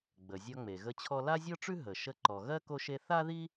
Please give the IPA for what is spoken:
ɡ͡b ə˩ zʲ ɒ˧ ŋ͡m e˩ ɣ ə˧ t͡ɕʰ ɔ˧ l a˥ zʲ ɔ˥ ʈ͡ʂ ʉ˥ ɦ ə˩ ʃ ə˧ ǃ ɔ˩ ɣ ɜ˥ k o˧ ʃ e˧ θ a˥ ð i˥

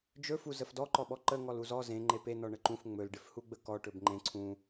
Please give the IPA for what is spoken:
d͡ʒ ɵ f u z ə f d ɔ ǃ ɔ ɓ ɔ ǃ ə ŋ ɔ l u z ɔ z ẽ ŋ͡ǃ e p e n ɔ ɳ ə ǃ ũ f ŋ͡m ɵ l ɖ ɪ f h u ɡ͡b ə k ɔ ʈ ɵ b ŋ͡ǃ ẽ ǀʰ ũ

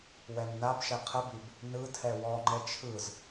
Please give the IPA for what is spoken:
w ɛ m n a b ʃ ɛ qʰ ə b i b | n ɯ tʰ ɛ w ɔ ŋ͡ǃ ɛ t͡ʃʰ ɯ z

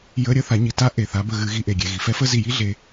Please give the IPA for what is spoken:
j ə˧˥˧ ɾʲ ə˧˥˧ θ a˩˧ ɲ i˩ t a˧˥ ʔ e˩ θ a˩˧ b ə˧˩ ɣ ɨ˩˧ ɣ i˩˧ ʔ e˩ ɡʲ e˩ ɣ i˩ f ɛ˧˥ f ə˧˥˧ z i˧˩ j i˧˥ ɮ e˩˧

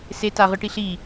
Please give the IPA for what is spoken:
s e t a ʁ ɯ ʈ i ɬ i

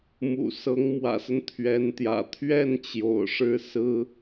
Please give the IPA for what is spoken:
m ṵ˨˩ s ɤ˧˥ ŋ m w ä̰˨˩ s ə˦ n t̪ʰ ɥ ɛ˧˥ n t̪ j ä̰˨˩ t̪ʰ ɥ ɛ˥˩ n t͡ɕ j o̰˨˩ ʊ̯ ʂ ɻ̩˥ s ɹ̩˥

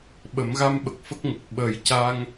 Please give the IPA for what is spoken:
ɓ ə˨˩˦ m ɣ a˧ m ɓ ə˨˩ k̚ f ə˦˥ k̚ ŋ ə˨˩ k̚ ɓ ə˨˩˦ j c a˧ ŋ

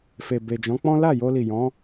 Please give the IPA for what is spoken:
f e˨ b e˨ d͡ʒ ɔ̃˨˦ k͡p ɔ̃˦ l a˦˨ j o˧ l i˨ j ɔ̃˨˦

